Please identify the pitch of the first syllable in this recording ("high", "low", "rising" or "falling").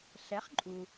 rising